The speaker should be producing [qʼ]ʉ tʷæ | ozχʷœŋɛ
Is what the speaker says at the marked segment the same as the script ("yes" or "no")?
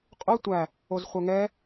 yes